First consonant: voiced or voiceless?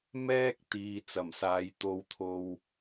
voiced